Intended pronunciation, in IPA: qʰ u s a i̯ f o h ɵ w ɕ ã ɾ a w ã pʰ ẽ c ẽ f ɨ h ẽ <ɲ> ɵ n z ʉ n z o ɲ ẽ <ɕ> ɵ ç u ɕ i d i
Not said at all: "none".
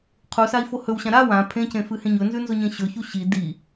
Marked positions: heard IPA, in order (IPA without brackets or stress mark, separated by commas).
ɲ, ɕ